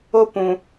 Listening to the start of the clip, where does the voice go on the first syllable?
high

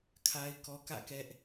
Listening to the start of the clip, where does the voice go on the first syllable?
high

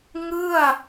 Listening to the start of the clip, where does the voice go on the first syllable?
falling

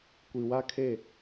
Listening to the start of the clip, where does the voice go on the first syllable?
low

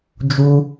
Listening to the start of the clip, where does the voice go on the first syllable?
high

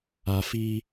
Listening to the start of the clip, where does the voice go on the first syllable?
low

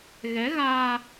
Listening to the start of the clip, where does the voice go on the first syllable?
rising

